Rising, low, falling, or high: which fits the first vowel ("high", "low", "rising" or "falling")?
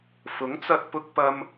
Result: rising